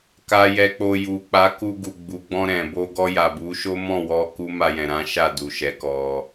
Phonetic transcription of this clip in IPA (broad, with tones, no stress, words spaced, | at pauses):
ka˨jɛ˨k͡po˨ ju˨k͡pa˨˦ ku˧ɡu˨ɡ͡bu˨ɡ͡bɔ̃˧ ɾɛ̃˨ bo˧ɡɔ˧ja˨ bu˨˦ʃo˦ mɔ̃˦˨wɔ˧ ku˦ ma˧jɛ̃˨ ɾã˨˦ʃa˦˨ du˨ʃɛ˨˦kɔ˧